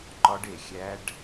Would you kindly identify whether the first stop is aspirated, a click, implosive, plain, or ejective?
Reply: click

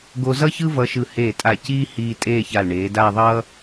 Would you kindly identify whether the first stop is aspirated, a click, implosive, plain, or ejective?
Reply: plain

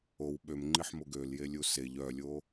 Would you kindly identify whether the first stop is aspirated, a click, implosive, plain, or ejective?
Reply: implosive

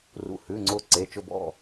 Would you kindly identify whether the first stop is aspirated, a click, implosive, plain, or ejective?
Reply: click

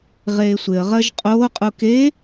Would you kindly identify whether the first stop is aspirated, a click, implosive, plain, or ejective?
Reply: ejective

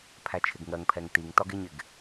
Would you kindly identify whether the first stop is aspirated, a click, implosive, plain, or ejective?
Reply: aspirated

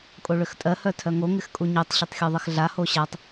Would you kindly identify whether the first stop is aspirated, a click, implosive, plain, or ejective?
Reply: ejective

